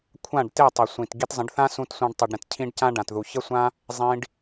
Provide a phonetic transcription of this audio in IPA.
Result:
kʷʰ ã˦˨ ɖ t e˦˨ tˤ i˨ sʷ ĩ˨ t ɡ i˧ t zˤ ə̃˨˦ ɖ θ ã˦ s ũ˧ t sʷ ã˧ ɖ tˤ u˨ ɖ ɾ ə̃˨ t cʰ ĩ˧ ɖ c ã˦ ɖ ã˨ t ð u˨ ç ə˦ sʷ ã˦ | zˤ ĩ˧ ɖ

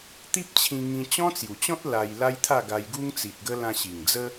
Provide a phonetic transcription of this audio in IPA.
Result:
t̪ i˦ p̚ t͡ɕʰ ĩ˧ ŋ ĩ˧ t͡ɕ ɔ̃˦ t͡s j u˨˩ t͡ɕ ɔ̃˦ t̚ l a˧ j l a˦ j t̪ʰ a˥˧ ɡ a˧ j ɡ u˦ ŋ t͡s i˨ t̚ ɡ ə˦ l ã˧ ɕ i˨˩ ŋ d͡z ə˦

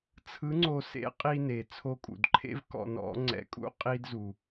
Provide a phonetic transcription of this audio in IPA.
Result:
t͡sʰ ɯ˧˥ ŋ͡ǀ o˧ s ḛ˧˥ qʼ i˧ n e˩ t͡sʰ o˧ kʼ ṵ˩ d ǃʰ ḛ˥ v k ɔ̰˧ n ɔ̰˧˥ ŋ͡ǀ ɛ̰˧˥ kʼ ṵ˥ qʼ i˥ d z u˩

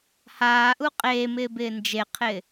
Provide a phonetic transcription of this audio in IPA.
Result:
h aː ʔ u qʼ eː m ɪː b ɪː n d͡ʒ e qʰ ɪː

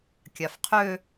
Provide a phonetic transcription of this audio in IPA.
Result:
kʲ a f qʰ ø

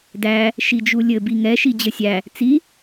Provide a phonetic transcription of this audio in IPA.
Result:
d æ | ʃ i d͡ʒ u lʲ ɘ b i ŋ ɛ ʃ i d͡ʑ ɘ sʲ æ | t͡s i

